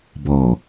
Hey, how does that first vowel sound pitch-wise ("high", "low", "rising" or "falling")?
low